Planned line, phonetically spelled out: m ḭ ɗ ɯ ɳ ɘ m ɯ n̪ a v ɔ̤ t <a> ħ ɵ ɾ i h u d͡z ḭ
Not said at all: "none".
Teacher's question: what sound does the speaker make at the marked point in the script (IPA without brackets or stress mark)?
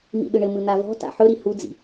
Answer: a̰